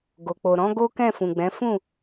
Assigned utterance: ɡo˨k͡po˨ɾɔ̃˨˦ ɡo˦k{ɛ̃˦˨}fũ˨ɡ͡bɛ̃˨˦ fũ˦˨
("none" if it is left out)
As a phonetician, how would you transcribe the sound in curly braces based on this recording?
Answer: ɛ̃˦˨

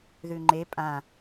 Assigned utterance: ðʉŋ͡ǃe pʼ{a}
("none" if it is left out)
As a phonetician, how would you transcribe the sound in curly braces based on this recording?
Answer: ã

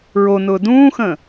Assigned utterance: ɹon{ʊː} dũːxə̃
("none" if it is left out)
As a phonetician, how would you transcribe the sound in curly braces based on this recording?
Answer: ʊː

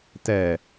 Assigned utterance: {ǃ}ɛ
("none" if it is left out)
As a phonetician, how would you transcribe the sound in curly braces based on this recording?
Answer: t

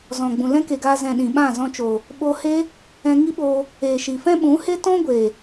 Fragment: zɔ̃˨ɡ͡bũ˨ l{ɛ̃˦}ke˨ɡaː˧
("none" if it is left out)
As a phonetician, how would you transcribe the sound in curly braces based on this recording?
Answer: ɛ̃˦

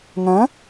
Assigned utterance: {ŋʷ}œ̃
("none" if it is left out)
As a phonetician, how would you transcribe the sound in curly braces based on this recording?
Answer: ŋ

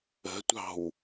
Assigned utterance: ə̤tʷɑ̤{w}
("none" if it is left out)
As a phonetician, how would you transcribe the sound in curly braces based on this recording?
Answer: w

